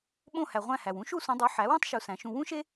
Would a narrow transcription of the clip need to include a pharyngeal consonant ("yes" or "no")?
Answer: yes